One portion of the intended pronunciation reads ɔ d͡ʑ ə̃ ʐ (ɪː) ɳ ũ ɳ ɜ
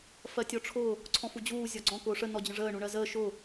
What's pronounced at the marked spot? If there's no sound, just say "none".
əː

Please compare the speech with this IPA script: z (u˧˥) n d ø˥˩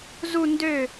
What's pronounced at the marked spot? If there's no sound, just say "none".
u˥˧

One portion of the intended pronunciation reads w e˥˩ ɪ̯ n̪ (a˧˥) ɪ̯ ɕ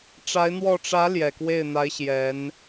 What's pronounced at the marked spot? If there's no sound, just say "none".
a˧˥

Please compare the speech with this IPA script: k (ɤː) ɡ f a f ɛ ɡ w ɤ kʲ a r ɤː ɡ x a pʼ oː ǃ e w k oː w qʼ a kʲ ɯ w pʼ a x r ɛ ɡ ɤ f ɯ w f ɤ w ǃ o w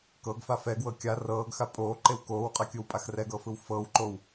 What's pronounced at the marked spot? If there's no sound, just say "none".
ɤ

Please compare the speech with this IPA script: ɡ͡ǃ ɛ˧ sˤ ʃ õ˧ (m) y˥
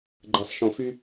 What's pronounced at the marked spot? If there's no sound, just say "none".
f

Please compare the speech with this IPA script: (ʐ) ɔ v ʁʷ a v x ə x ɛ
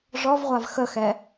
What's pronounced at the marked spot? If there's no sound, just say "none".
ʐ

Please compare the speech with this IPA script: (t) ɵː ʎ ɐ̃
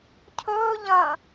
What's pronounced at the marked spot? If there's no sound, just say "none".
cʰ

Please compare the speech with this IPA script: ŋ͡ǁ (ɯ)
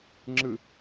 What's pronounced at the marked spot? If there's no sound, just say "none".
ɯ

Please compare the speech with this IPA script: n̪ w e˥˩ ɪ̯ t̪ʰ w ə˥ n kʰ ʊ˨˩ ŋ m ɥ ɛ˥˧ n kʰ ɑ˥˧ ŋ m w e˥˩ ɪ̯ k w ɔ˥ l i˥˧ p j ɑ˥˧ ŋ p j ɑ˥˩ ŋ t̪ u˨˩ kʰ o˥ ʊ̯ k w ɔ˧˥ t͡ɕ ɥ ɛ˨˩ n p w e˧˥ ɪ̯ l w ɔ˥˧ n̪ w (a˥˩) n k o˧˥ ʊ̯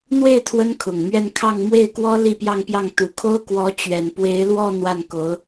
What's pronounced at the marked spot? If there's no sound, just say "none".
a˥˩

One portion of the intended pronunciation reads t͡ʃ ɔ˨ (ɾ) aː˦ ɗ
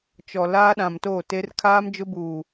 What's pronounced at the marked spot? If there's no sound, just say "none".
l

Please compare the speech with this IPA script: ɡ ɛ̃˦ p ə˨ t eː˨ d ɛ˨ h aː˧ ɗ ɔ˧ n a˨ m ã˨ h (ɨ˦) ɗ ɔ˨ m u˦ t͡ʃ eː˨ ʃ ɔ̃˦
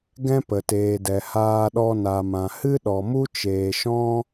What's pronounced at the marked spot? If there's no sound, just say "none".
ɨ˦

